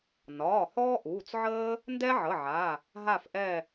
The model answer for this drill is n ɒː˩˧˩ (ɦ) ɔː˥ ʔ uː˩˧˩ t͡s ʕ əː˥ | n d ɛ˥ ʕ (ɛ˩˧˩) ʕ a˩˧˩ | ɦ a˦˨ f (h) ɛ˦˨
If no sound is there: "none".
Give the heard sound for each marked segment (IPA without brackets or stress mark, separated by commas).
h, ə˩˧˩, ʔ